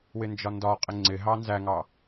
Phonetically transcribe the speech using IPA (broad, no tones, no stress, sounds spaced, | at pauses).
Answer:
w ɪ n d͡ʒ ɒ n d ɒ qʼ ɪ ŋ͡ǀ ɪ ɦ ɑ n z æ ŋ ɑ